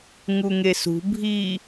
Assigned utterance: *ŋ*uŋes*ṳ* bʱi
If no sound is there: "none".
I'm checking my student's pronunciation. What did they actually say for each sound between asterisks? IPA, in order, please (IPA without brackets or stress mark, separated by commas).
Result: ŋ, ṳ